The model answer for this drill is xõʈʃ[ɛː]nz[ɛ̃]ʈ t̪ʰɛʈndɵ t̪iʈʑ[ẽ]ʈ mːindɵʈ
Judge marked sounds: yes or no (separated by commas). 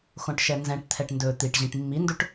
no, yes, no